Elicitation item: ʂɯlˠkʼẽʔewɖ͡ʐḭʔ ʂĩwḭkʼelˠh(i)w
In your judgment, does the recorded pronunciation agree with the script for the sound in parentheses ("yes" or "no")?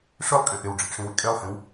no